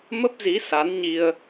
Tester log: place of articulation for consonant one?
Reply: labial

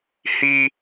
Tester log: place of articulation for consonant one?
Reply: glottal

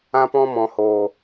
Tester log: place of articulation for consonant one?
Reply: labial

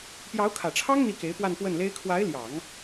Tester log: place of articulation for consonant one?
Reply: labial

